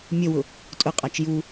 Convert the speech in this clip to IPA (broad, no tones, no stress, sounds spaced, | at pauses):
mʲ ə w ʊ | tʼ ʊ qʼ ɑ t͡ʃ j u